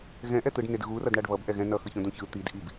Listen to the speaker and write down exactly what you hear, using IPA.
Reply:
ɣ ɛ̃ ʔ ɛ t̪ ɯ ɖ n e d ɣ u r ʌ d ɳ a ɖ β ʌ b ʔ ɛ ɣ ɛ̃ n ʌ x ɯ ç õ d õ ç ɯ t̪ i d ʔ i b

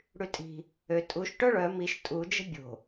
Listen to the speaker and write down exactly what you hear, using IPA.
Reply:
ɽ y tʼ i̤ | ø tʼ u ʃ ʈ œ ɭ œ m i ʃ tʼ u d͡ʒ ə̤ bʲ o̤

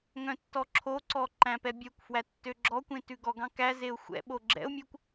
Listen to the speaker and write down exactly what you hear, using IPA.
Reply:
ŋ œ̃ tː ɔ ǁʰ o ǀ ɔ ǃ æ̃ p ɛ bʲ œ kʷ f w æ tː ø ɡ͡ǁ ɔ kʷ ẽ t ʉ ɡ ɔ ɡ ɑ̃ k æ z e ʊ̯ xʷ ɛ̰ ɓ o ɡ͡ǁ ɛ̰ ʊ̯ mʲ ø kʷ

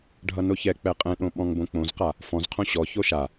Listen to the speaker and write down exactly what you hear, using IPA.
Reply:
ɖʱ ʌ n o ç ɛ k͡p ɛ qʼ ɛ̃ ɗ õ ɓ ɔ̃ ŋ b õ k͡p õ z q a | f ɔ̃ z qʰ õ ɕ ɔ ç o ʃ a

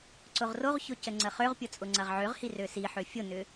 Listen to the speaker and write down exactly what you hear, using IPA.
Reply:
ǀ ʊ ʁ r o ʁ ç ʊ c ə ŋ͡ǀ ə χ ø ʁ pʲ ʊ t͡sʼ ʊ ŋ͡ǀ ɐ ʁ ʕ ø ʁ h i r ø s i ħ ø fʲ ʊ n ʏ

